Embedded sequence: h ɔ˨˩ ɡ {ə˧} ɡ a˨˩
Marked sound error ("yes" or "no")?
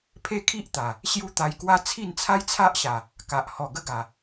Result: no